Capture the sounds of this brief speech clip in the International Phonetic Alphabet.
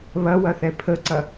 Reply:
β ɐ w ɐ θ ɛ pʰ ə ǀ ɐ

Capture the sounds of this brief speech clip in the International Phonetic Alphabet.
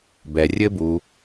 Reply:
b ɛ rʲ ɘ b u

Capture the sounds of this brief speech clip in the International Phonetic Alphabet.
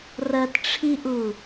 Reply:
r ɐ t ʈ͡ʂʰ i ʔ u

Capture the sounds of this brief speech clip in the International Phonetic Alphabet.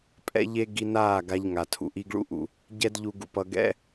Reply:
pʼ ɛ̰˦ ʎ e˦ ɡ i˧ n aː˦˨ ɡ a˧ ʎ ŋ a˨ tʰ ṵ˨ ʔ i˧ ɡ ɭ ṵ˦ ʔ ṵ˨ | ɟ ɛ˦ d ʎ u˧ ɡ ṵ˧ p ʌ˧ ɡ ɛ̰˦

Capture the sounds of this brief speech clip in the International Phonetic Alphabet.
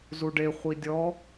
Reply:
z u ɖ e χʷ i dʲ ɔ

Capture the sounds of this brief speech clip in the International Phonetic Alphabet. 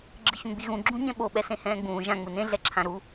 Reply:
ɡ͡ǁ ɯ ç ũ ɡ͡b i ɣ ũ ɡ͡ǁ ũ ɲ ɛ̃ ɓ o ɓ ɛ s ẽ h ɛ̃ː ɡ͡b ũː ʒ ã ŋ͡m ɯ n ẽ ɮ ɛ ǁʰ ã ɾ u

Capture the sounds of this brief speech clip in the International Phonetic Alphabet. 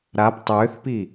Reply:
ɾ a p tˤ ʏː θ p i

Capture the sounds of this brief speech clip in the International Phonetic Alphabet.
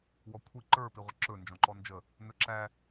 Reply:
w ɔ kʷʰ i ǃ ə˞ p i ʁʷ ə ǁ ɵ n d͡ʒ ɔ̃ ǃ ɔ n d͡ʒ ə | n ɵ ǁ æ

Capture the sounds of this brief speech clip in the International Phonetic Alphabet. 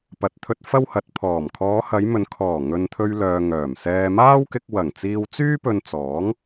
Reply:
p ɐ˨ t̚ t̪ʰ ɵ˧ t̚ f ɐ˥ w h ɐ˨ t̚ pʰ ɔː˨˩ m kʰ ɔː˨˧ h ɐ˨˧ j m ɵ˨ n kʰ ɔː˨˩ ŋ ɵ˨ n t̪ʰ ɵ˧ ɥ l œː˨ ŋ œː˨˩ m s ɛː˧ m aː˥ w k ɪ˧ k̚ w ɐ˨˩ ŋ t͡s iː˧ w t͡s yː˥ p ɵ˧ n t͡s ɔː˨˥ ŋ

